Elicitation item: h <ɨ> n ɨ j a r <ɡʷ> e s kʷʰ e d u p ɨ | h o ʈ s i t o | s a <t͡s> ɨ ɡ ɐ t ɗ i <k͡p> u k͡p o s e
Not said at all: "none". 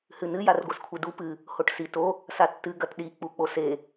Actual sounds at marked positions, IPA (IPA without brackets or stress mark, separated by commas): ɨ, ɡʷ, tː, k͡p